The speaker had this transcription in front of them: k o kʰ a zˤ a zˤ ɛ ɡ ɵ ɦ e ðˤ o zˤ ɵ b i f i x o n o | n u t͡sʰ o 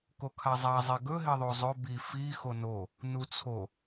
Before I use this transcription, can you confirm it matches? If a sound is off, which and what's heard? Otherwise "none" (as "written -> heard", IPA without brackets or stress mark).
none